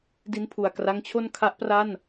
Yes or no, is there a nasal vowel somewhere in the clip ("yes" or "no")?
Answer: no